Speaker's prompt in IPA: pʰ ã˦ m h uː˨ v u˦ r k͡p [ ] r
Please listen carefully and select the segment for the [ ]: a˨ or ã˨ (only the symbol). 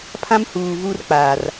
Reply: a˨